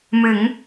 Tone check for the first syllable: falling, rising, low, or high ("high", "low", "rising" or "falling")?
rising